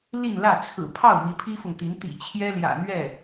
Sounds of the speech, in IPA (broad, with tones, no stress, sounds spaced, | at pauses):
l i˥˧ n l ä˥˩ t͡sʰ ɹ̩˨˩ pʰ ɑ˥˩ ʊ̯ m i˧˥ pʰ i˥ f ʊ˨ ŋ t̪ i˧˥ n t̪ ḭ˨˩ t͡ɕʰ j ɛ˥ l j ä̰˨˩ n̪ ɥ ɛ˥˩